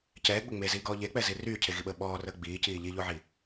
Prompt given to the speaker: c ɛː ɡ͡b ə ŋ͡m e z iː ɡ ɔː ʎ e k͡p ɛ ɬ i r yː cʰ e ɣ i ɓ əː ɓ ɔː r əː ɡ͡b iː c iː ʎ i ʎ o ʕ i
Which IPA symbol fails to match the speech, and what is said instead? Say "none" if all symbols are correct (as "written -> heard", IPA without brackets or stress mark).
ɬ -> z